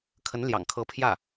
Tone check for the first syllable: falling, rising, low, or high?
rising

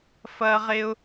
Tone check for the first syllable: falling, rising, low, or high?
high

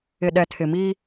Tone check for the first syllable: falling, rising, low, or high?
low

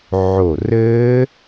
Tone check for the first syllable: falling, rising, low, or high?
low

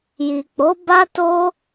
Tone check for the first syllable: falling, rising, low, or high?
low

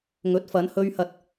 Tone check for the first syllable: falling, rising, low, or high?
rising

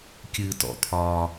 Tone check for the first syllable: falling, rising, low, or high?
low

